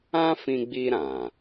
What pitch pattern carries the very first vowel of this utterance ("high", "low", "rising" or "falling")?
high